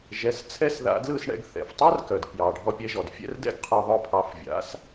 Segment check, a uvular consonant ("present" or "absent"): present